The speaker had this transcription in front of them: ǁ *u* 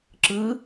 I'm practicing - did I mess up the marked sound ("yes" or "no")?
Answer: yes